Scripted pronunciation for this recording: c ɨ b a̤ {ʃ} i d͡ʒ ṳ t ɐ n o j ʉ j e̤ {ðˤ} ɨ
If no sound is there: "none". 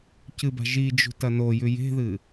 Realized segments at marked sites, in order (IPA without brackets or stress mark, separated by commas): ʒ, ð